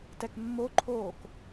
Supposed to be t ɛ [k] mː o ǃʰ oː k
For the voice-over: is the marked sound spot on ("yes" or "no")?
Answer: yes